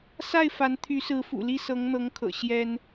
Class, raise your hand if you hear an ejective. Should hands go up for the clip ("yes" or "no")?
no